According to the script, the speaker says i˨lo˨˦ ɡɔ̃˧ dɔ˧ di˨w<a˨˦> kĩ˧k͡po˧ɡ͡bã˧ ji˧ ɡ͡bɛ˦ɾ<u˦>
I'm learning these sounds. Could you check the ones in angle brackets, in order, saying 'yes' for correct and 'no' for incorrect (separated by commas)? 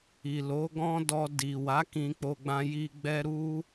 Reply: yes, yes